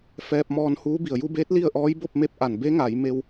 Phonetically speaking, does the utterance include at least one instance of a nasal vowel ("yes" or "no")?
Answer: no